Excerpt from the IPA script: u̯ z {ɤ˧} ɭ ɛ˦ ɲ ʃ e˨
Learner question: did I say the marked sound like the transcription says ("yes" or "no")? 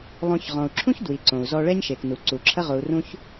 no